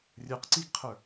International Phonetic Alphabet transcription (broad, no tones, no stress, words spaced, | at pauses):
rʲə˞qǀiɡqʰə˞